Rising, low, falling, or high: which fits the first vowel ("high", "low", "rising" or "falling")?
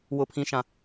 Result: high